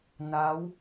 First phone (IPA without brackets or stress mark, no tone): n